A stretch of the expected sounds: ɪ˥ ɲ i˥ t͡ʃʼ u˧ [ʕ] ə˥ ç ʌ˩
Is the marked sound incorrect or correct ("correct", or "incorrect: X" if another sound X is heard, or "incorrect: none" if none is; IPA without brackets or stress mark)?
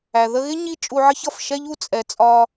correct